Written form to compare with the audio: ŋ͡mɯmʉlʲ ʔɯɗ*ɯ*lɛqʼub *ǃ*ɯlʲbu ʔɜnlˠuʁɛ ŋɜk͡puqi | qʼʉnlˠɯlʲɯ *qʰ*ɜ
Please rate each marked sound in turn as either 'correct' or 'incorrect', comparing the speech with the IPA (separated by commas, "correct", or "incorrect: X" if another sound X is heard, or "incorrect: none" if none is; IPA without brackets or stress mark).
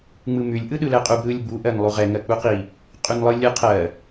correct, incorrect: ɾ, correct